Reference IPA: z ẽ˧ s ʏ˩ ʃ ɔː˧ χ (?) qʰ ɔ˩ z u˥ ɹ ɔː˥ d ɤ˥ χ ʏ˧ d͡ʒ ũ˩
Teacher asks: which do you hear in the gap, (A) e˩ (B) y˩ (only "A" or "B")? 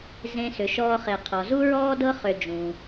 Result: A